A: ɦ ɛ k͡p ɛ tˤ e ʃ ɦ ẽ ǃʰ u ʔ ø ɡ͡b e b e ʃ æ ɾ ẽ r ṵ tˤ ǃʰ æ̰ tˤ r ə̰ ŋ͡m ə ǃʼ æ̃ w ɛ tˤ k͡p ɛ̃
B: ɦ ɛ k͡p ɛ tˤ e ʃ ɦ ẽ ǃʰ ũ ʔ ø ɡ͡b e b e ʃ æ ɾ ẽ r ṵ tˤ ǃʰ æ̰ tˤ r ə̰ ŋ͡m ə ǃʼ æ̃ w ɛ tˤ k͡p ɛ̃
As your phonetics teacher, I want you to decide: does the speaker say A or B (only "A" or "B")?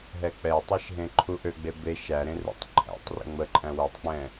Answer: A